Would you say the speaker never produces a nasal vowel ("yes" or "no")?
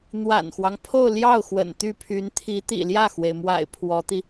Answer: yes